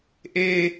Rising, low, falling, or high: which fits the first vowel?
low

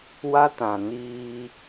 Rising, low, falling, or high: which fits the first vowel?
high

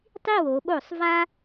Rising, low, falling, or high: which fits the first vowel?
falling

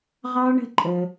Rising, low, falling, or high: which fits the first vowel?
high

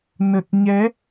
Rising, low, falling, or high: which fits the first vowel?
low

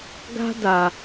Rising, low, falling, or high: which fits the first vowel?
high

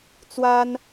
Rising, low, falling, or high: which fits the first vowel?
high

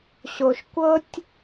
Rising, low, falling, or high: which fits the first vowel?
low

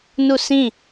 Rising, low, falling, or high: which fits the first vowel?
falling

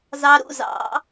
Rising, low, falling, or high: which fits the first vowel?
low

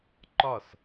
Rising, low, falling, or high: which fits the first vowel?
falling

